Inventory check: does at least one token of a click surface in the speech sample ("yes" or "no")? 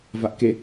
no